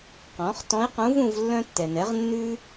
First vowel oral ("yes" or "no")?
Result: no